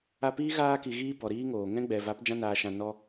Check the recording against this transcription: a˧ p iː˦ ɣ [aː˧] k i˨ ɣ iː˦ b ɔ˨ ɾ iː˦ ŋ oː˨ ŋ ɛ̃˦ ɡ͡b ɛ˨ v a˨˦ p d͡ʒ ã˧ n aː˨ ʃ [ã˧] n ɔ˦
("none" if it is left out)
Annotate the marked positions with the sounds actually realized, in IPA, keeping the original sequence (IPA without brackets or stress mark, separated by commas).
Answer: aː˧, ã˨